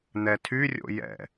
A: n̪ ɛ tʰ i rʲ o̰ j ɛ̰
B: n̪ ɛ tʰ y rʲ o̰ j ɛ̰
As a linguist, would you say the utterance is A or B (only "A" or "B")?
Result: B